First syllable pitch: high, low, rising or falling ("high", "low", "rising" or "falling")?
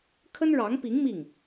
high